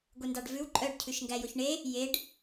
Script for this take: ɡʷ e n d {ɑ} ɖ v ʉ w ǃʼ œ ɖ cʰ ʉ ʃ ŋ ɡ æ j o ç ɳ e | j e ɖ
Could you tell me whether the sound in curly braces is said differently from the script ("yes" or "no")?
no